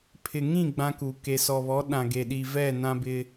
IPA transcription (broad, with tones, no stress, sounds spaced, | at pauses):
pʰ ɪ˨ ŋ ĩ˦˨ ɡ͡b ã˦ k u˨ k e˨ s ɔ˨ β ɔ˨˦ ɗ ã˨ ɡ e˨ ɗ i˨ v ɛ˦˨ n ã˦ b ɪ˦